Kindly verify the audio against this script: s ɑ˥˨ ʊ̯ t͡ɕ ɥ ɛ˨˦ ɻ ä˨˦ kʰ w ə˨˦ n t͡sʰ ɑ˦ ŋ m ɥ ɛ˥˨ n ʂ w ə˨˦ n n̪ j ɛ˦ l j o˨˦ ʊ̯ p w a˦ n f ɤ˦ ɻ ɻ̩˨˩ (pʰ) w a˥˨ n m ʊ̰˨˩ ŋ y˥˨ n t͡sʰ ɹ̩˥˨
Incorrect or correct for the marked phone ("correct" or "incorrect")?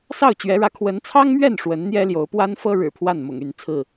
correct